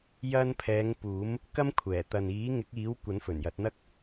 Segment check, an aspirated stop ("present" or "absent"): present